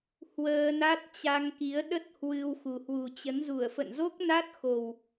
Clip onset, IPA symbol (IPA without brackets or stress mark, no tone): h